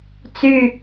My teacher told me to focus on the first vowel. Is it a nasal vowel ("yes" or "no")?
no